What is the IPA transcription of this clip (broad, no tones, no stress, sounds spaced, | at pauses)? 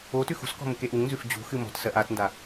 o t ʉ x ṳ s k ɔ̤ m u k e ʔ u ŋ n z ʉ f d͡ʑ ṳ x ɨ m ɔ̤ t s ɜ ʔ a t n d a